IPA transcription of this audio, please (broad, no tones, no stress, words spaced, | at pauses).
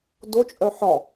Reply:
dot͡ʃʼœ ħɒ